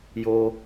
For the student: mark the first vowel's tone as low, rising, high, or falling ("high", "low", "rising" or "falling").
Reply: high